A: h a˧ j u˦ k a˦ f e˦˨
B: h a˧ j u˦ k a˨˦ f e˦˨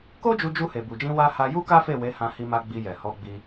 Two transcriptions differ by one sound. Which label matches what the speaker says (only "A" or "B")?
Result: A